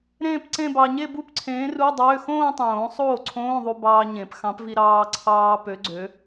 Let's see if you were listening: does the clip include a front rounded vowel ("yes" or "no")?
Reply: yes